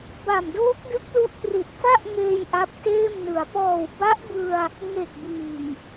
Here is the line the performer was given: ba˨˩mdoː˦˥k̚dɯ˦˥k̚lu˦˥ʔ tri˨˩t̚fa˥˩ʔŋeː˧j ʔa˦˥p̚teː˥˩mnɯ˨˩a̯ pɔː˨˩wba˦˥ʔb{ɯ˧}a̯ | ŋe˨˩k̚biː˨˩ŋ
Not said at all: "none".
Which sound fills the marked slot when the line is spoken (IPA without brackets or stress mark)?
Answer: ɯ˧